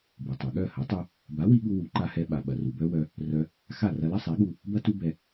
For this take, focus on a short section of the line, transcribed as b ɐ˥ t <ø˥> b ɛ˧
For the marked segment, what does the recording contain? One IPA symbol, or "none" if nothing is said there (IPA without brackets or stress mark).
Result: u˥